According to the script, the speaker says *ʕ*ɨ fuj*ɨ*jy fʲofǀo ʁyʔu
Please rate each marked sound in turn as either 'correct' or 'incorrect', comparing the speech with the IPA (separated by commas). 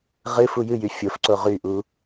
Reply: incorrect, correct